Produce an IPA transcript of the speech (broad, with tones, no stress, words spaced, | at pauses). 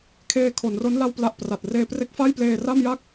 kʰeː˧kʰo˩˦nro˦˥n la˥˩wpla˦˥ʔpra˨˩t̚ reː˧pre˦˥k̚fa˥˩j pleː˧ra˥˩mja˥˩k̚